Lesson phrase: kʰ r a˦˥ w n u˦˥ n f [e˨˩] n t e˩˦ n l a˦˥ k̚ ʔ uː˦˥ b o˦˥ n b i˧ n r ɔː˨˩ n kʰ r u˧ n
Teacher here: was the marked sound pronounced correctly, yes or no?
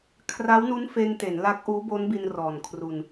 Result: no